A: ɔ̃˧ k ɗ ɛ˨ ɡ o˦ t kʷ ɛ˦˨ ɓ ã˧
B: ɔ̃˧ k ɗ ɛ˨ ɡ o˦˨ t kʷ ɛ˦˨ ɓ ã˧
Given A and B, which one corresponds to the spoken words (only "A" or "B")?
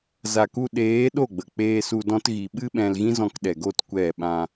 B